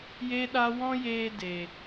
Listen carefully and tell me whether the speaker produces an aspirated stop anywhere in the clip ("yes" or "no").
no